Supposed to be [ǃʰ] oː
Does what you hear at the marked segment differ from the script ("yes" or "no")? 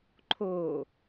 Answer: no